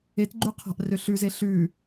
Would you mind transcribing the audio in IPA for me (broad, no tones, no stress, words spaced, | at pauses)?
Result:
etɡ͡ǃʉ qʰa̤ʔrø ɬʉze ɬʉ